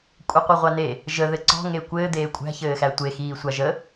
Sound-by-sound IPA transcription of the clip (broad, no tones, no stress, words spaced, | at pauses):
kʷʼɘqʷiʁʷane | ʒə ðɘǀɔ̤ŋe kʷɘːd̪eː kʷʼæ̤çɘːxæ tʷexiː sʷaʒə